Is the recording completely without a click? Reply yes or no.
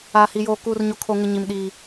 yes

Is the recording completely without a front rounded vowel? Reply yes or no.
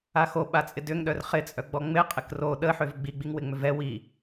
no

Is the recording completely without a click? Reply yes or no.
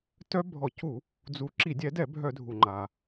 no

